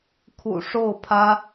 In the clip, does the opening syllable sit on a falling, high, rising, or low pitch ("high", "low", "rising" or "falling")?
low